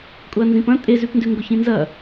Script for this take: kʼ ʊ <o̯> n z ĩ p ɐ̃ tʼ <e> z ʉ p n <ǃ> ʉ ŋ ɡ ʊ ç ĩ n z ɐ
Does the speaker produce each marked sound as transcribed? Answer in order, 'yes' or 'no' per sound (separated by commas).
no, yes, no